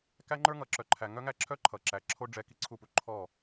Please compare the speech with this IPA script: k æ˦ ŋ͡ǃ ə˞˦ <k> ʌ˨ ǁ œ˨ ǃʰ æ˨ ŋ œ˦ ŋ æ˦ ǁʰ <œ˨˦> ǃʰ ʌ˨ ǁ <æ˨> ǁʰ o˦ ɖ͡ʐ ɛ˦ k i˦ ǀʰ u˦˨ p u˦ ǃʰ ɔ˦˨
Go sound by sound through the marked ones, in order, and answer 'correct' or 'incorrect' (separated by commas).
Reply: incorrect, incorrect, correct